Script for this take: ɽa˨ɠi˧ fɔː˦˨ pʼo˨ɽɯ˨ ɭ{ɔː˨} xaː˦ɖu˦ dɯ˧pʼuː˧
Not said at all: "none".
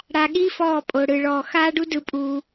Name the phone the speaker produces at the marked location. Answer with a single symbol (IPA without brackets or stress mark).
ɔː˨